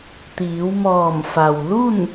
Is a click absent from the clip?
yes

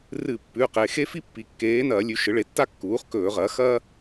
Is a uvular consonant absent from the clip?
no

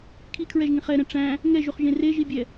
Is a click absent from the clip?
yes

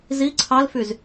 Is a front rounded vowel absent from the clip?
no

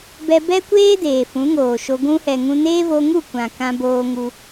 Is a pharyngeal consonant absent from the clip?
yes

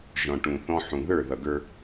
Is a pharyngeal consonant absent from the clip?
no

